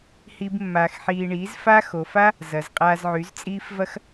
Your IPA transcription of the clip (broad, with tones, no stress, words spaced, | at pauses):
hi˦bmːaː˧xħiː˧ ɳiː˨˦zfa˦xo˨fa˦ | zɐ˨zqʼaː˧zʕy˨˦z t͡sʼiː˦fvɐ˦x